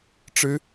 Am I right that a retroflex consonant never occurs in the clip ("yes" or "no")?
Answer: no